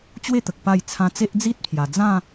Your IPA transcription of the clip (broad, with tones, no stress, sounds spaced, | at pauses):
t͡ɕ w e˥˧ t̪ ə˨ k̚ p a˥˧ j t͡sʰ ã˧ t͡s e˦ ʔ d͡z i˦ t̚ pʰ j a˨˩ d͡z ã˥˧